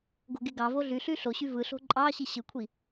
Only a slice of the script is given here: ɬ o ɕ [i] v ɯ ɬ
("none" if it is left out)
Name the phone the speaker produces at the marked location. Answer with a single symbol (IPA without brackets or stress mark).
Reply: y